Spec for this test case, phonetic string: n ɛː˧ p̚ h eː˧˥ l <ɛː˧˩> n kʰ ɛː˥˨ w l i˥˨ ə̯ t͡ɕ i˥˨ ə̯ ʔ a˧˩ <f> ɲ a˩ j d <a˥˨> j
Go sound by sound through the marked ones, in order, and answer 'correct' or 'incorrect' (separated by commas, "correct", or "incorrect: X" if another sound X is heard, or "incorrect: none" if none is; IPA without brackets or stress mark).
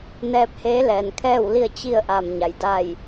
incorrect: ɛː˩, incorrect: m, incorrect: aː˥˨